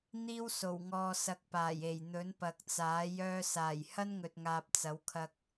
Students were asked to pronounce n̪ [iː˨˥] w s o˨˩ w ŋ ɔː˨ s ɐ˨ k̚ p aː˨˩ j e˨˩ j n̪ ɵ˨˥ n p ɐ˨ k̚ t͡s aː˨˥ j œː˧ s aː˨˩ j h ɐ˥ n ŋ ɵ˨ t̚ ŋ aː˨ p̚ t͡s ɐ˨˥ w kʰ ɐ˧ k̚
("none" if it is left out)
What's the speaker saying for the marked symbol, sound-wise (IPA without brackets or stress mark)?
iː˥